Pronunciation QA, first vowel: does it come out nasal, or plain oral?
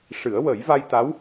oral